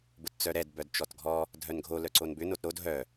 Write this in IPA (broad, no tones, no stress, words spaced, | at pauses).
bʊtt͡sœɾɛd bœdt͡ʃɔtɡʱɔ | dʱœnɡʱo lœǀonbʏ notɾod ɦœ